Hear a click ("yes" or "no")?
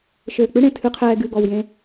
no